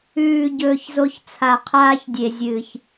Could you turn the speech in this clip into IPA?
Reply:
ʉː˨ ɟɵː˦çzo˦ç t͡sʰa˨qʰaː˦çdʲe˨zʲɨː˨ç

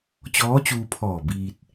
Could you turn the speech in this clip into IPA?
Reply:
t͡ɕɔː˧˥t͡ɕuː˧pʰɔː˧˩ biː˧t̚

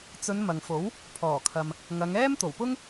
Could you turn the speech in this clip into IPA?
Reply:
t͡sɵ˨˧n mɐ˨ŋfo˨˥w | pʰɔː˨˩kʰɐ˨m | ŋɐ˨˧ŋ ɛː˥mt̪o˨˩wpʊ˥ŋ

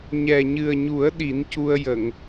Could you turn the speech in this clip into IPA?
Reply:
ɲɛ˨˩ɲɨ˨˩ə̯ɲu˨˩˦ə̯ ɗi˨˩˦ncu˧ə̯ jə˨˩˨ŋ

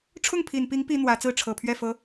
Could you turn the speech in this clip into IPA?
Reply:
ʈ͡ʂʰʊ˥˩ŋpʰi˨˩npi˧˥ŋ pi˥ n̪wä˧˥ t͡sɹ̩˥˩ʈ͡ʂʰɤ˨˩pʰɥɛ˥˩fɤ˧˥

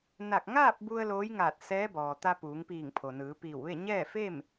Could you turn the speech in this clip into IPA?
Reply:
na˧˩k̚ ŋaː˥˨p̚ bu˧ə̯ loː˧˥jŋaː˧˩t̚ sɛː˧˥bɔː˩t̪a˧ puː˩˧ŋpiː˧˩ŋpʰo˩ nɯː˩˧piː˧˩wʋe˥˨ ɲɛː˥˨fe˥˨m

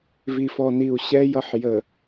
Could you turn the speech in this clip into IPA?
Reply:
vi˨fɔ˨ ni˨u̯ɕɛ˦ jʌ˦ħjə˨

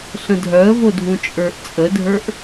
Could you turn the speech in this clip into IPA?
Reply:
ɬə̃dʱœə̯vodʱũ t͡ʃʼə˞ʔt͡sʼədʱə˞ʔ

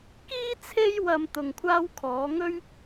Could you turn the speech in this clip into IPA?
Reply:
kiː˥ t͡sʰe˥jwɐ˧m t̪ʊ˧ŋkʷʰaː˥w kʰɔː˨˧ŋɵ˥ɥ

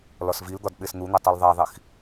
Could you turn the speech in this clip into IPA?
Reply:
lɒsvild̪ɒd ɓesn̪un̪e tˤulðˤæðˤix

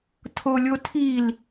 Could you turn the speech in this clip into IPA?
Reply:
tʰolʲotʰil

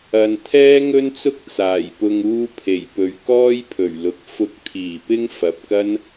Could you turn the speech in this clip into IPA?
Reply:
ɐ˨n t̪ʰɛː˥ŋɵ˥nt͡sʊ˥k̚ t͡saː˨˩jpʊ˧ŋ uː˥pʰe˨˩jpɵ˨˥ɥ kɔː˥jpʰɵ˨˩ɥlʊ˨k̚ fʊ˧k̚t̪ʰiː˨˩pɪ˥ŋ fɐ˨p̚kɐ˥n

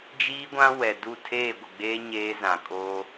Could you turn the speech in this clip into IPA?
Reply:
d͡ʒiː˦ɡʷã˦ wɛ˨du˦˨ tʰeː˦˨ɡʷɪ˨ɡ͡beː˦ ɲeː˦zã˨ kʼo˦

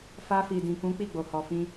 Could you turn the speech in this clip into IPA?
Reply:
fa˧fi˨dĩ˨kũ˨˦ k͡pi˦˨ɡ͡bo˨hɔ˨ fĩ˧

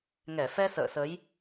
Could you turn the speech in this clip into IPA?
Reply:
ŋɛ˧˩ fɛ˧ sə̰ː˧˨sə˨˦j

